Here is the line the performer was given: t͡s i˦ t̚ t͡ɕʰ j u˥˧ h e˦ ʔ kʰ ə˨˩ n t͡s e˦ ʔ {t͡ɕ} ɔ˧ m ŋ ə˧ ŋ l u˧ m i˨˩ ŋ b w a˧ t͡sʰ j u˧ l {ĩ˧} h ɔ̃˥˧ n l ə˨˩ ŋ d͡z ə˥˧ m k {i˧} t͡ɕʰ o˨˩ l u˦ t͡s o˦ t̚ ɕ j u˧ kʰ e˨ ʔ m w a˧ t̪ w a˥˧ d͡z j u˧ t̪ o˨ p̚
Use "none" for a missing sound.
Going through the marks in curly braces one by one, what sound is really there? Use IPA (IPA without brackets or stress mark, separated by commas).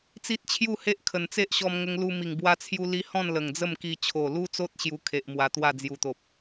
ɕ, i˧, i˧